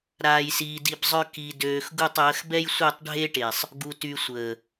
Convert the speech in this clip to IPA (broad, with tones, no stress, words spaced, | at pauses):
ɾaː˧jsiː˧di˧bzˤœ˦ ki˧døː˧x ɡu˦˨tˤəː˨˦x bɛ˦jsʷe˦˨tˤ ɖʱe˦ʈe˨sˤ | ɡu˧ty˧sʷəː˨